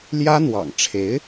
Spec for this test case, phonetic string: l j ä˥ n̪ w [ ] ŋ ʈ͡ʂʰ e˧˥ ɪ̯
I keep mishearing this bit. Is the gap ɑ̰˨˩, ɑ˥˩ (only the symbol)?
ɑ̰˨˩